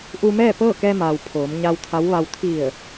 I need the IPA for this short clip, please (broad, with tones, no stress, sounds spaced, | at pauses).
ʔ u˧ m ɛː˥˨ p ɤː˥˨ k ɛː˧ m aː˩ w pʰ oː˩˧ m ɲ a˧ w t̪ʰ a˧˥ w ʋ a˧ w t̪ʰ i˧˩ ə̯